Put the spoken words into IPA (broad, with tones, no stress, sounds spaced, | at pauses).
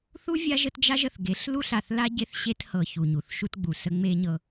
θ u˦ vʲ a˦ ʒ ə˦ t d͡ʒ a˦ ʒ ə˨ θ ɡ e˨˦ ɬ l u˦ ɬ a˨ θ l a˦ ɟ e˦ θ ɕ e˦ t h ɤ˨ ç u˨ ɲ u˨ θ ʃ u˦ t ɡ͡b u˨ s ə˦ ŋ͡m e˦ ɲ ɤ˦